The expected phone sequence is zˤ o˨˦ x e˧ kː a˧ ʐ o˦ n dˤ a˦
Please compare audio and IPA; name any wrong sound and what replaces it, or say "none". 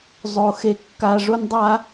none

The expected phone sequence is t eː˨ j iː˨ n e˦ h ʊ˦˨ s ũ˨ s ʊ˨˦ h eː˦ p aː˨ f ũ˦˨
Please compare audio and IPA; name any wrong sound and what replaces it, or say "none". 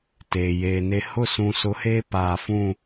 iː˨ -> eː˨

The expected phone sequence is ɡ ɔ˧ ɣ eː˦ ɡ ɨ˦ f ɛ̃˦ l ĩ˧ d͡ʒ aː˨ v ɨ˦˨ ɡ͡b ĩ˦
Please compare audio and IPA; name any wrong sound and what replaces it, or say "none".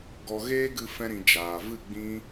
l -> ɾ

